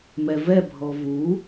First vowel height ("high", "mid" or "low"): mid